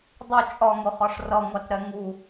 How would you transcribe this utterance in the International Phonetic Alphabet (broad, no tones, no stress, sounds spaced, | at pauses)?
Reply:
dˤ ʊ t͡ʃʼ ɒ ŋ ʊ χ ɒ ʂ r ʌ ŋʷ ɑ t ɾ ɛ ŋ u